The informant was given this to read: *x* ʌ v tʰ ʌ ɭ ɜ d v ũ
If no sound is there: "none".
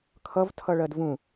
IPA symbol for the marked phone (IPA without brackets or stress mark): kʰ